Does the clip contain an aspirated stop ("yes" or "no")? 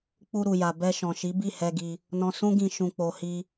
no